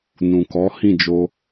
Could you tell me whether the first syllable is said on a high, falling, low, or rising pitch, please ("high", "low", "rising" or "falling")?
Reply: low